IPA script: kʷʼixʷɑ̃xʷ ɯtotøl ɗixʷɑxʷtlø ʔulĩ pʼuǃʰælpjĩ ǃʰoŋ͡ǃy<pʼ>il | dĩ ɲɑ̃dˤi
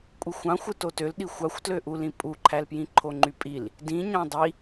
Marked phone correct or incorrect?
correct